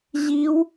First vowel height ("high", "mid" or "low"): high